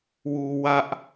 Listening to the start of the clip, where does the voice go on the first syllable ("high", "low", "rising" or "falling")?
low